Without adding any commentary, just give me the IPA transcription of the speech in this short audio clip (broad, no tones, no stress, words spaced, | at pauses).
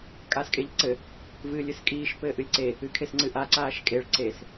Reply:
kʼaːskʼeʎǀɘ | vɨːlʲɨskʼiːʃ pɘːʔɨlʲǀe | ɨkʰesŋ͡ǀɨʔa ǀaːʃkʼeɭ ǀes